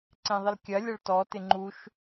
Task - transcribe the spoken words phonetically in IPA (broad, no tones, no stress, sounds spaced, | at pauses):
ǀ ẽ ðˤ ɪ l kʲ ɐ lʲ ɐ ɭ t ɔ t ɪ ŋ͡ǃ u ʃ